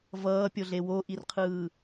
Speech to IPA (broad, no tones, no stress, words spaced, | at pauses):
vʌːpʲoɮe woʔirqʰɯː